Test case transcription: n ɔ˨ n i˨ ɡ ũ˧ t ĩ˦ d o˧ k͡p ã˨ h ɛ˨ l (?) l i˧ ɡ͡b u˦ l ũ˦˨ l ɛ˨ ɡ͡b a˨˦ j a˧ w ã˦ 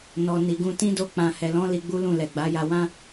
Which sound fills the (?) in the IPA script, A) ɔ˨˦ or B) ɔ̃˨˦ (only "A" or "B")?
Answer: B